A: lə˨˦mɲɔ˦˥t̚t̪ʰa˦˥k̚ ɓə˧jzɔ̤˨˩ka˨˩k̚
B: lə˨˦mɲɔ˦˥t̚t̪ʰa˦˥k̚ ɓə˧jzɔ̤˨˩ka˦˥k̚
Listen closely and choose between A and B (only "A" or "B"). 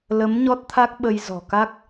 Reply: B